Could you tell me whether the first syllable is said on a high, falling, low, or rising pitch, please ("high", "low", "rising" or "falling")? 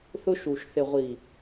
high